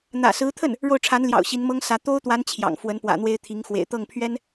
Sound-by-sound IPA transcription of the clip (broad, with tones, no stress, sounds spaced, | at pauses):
n̪ ä̰˨˩ s ɹ̩˧˥ t̪ʰ ə˥˩ n | ɻ o˥˩ ʊ̯ ʈ͡ʂʰ a˧˥ n l j ɑ̰˨˩ ʊ̯ ɕ i˧˥ n m ɤ˥ ŋ s ä˧˥ t̪ o˥ ʊ̯ t̪ w a˧˥ n t͡ɕʰ j ɑ̰˨˩ ŋ f w ə˧˥ n p w ä̰˨˩ n̪ w e˥ ɪ̯ t̪ʰ i˧˥ ŋ x w ḛ˨˩ ɪ̯ t̪ ɤ˥˩ ŋ pʰ ɥ ɛ˥ n